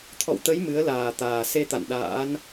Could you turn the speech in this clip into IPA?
t̪ʰɔ̰˧˨wt̪ə˨˦j mɨ˨˦ə̯laː˨˩t̪aː˨˩ se˧t̪a̰˧˨n ɗa̰ː˧˥n

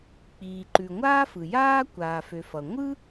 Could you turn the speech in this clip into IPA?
k͡piː˩ǃʉ˩ŋʷaː˥ fɯ˩jaː˥ kʷaː˩fø˩ fʌ˩ŋʷɯ˥

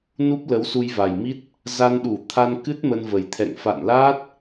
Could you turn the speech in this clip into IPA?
nu˦˥p̚lə˨˦w su˧jva˨˩jmi˦˥t̚ | za˧nɗu˧˩t̪ʰa˧nkɨ˦˥t̚ mə˧nvə˨˩jt̪ʰɛ̰˧˨ŋ fa̰˧˨nla˦˥t̚

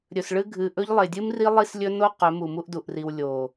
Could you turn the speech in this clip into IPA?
ɾʲɵ˨sɭɨ˦ ɡʱɨ˨ʔɵ˦ʎ lˠe˨dʲɨ˦mri˦ lˠi˦slʲɵ˦ no˦ qɵ˨˦mu˨mu˦ʔ du˨ʔri˨w lʲo˨

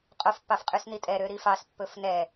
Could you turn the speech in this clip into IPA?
qʼof pːɑfqʼysnitʼɛ ɾøɾifɑs pːɵfnɛ

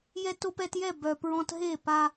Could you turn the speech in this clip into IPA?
jɛ˧to˧pɛ˧tjɛ˦˨ bœ˨pɹɔ̃˧t ɦe˦˨pa˧

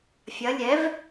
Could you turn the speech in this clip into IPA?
fʲɐ lʲɛv

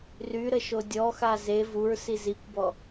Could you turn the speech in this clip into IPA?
ryɾə ʃodʲɔxa ze vuɹ sizikʷbɔ

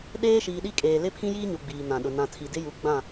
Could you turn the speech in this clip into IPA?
ɗeː˦ʃiː˨ɗi˦kʼeː˨ lɪ˦pʰĩ˦jiː˦ɲu˨ ɡ͡biː˨nã˨ɗʊ˨ nã˨tʰi˨dɪ˦ ju˨˦ɡ͡bã˦˨

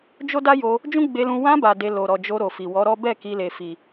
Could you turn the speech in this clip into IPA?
d͡ʒo˦da˦jo˧ | d͡ʒũ˦ɡ͡be˧lũ˧ wã˧ba˨ de˧ lo˨ɾɔ˨d͡ʒo˧ ɾo˨fi˨wɔ˨˦ɾɔ˦ bɛ˦˨ ki˧le˨fi˨

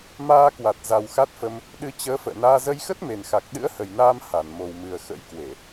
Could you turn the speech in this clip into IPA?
maː˧kwa˨˩t̚ za˨˩wxa˦˥t̚fə˧m | ɗɨ˨˦t͡ɕəː˨˦ fə̰ː˧˨naː˧ zə˧jxə˦˥t̚me˨˩nxa˨˩k̚ ɗɨ̰˧˥ə̯hə˨˩jnaː˧m ha˧˩nmo˨˩wmɨ˨˩ə̯ xə̰˧˥jkwe˧˩˨

